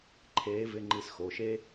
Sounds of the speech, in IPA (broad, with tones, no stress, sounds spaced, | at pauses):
ǃʰ eː˧˥ v ɪ˧˥˧ ŋ͡ǃ i˧ s x o˩˧˩ ʃ eː˥